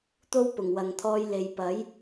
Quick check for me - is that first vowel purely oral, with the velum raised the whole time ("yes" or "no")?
yes